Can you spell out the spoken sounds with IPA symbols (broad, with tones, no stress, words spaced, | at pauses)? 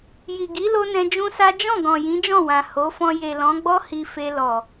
ji˨ɡi˨˦lo˧ nɛ̃˧d͡ʒũ˦sa˦ d͡ʒɔ̃˦˨ɡɔ̃˨ jĩ˨˦d͡ʒɔ̃˦˨wã˨ ho˨˦fɔ̃˧ je˨lɔ̃˨˦ɡ͡bɔ˦ hi˧fe˧ lɔ˨